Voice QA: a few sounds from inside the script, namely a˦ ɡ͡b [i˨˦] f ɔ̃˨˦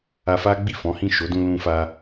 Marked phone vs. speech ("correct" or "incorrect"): incorrect